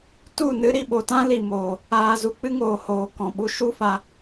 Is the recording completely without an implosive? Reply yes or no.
no